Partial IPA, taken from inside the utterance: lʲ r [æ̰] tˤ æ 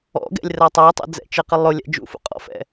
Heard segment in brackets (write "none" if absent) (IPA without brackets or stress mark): æ